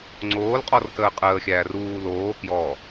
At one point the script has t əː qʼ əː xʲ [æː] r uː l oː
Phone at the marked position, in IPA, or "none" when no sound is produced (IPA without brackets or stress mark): æː